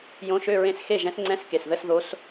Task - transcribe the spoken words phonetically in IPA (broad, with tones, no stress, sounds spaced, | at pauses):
j õ˧˥ ʃ ø˧˥˧ ɹ ẽ˥˨ s x e˥˨ ʒ ɛ̃˧˥ s ŋ͡ǀ ɛ̃˧˥˧ s k e˩˧˩ s ð ə˧˥˧ s ð o˧˥ s